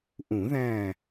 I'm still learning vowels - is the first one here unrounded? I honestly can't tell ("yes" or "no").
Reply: no